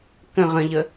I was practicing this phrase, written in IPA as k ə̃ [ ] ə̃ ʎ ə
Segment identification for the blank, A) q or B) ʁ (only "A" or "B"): B